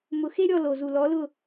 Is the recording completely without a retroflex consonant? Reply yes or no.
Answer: yes